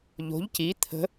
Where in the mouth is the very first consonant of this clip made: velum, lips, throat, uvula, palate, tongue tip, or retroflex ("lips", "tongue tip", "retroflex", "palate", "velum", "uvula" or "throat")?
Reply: palate